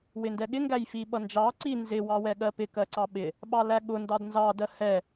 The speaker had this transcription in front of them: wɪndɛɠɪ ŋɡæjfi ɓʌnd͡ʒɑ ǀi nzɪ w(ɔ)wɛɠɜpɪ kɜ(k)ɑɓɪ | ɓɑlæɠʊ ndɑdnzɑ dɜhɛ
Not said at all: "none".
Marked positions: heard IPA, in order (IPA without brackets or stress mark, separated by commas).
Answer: ɑ, ǀ